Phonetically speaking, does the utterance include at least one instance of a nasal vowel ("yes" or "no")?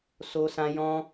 yes